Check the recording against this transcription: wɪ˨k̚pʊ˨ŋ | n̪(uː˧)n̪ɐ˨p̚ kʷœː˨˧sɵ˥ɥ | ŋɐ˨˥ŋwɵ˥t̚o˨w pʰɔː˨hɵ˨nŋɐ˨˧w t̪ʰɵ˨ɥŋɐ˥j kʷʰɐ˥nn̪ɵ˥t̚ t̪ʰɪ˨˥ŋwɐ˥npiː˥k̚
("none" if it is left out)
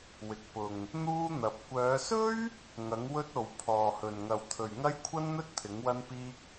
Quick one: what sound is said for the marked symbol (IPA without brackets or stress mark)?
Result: uː˥